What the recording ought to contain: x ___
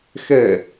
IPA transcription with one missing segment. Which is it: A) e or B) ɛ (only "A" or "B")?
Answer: B